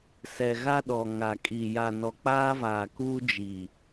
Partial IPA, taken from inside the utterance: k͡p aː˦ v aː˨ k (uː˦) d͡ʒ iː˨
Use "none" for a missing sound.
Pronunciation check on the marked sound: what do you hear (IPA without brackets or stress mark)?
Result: uː˦